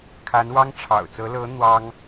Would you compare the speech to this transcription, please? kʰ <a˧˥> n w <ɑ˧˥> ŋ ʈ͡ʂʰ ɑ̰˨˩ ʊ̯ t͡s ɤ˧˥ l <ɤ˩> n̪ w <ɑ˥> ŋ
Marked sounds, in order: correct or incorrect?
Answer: correct, incorrect: ɑ˥, incorrect: ɤ˧˥, correct

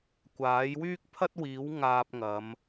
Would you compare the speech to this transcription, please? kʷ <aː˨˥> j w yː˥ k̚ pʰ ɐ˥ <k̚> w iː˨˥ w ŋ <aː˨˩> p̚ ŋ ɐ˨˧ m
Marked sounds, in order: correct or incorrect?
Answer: correct, incorrect: t̚, incorrect: aː˧

